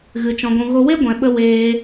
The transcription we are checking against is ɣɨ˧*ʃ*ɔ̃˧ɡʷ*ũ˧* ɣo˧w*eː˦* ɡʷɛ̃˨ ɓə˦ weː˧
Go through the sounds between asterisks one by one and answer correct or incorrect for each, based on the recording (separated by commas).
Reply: incorrect, correct, incorrect